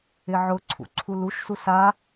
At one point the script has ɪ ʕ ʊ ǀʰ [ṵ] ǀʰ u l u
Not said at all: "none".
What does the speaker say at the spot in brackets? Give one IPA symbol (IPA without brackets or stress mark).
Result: ṵ